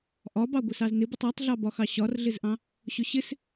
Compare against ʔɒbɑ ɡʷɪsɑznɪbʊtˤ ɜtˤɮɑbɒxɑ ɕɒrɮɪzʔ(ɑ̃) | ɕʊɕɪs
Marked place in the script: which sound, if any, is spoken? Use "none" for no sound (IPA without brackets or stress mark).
ɑ̃